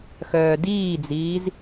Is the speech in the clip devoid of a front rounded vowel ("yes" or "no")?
no